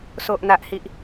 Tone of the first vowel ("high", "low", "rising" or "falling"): low